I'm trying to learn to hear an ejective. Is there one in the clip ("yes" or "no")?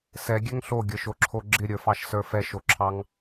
no